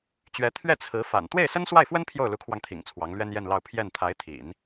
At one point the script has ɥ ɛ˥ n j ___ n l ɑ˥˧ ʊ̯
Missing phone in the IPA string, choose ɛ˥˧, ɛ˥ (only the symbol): ɛ˥˧